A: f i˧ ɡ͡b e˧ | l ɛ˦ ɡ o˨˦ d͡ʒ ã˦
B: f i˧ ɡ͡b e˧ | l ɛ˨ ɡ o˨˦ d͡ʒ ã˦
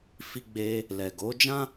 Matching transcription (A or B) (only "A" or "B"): B